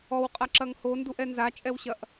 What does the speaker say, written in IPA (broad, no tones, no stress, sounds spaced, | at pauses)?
ɔ w qʼ a ǁ ɐ ŋ h o n d u ʔ ɛ n z a t͡ʃʼ ɛ w ɕ ɐ ʔ